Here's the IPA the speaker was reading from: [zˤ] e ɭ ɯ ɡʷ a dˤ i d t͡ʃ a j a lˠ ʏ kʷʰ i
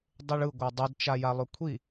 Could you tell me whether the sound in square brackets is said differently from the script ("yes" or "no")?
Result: yes